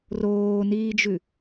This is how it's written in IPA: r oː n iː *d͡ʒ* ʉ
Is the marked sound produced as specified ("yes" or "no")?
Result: yes